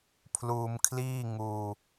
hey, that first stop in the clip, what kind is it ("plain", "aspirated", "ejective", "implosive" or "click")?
aspirated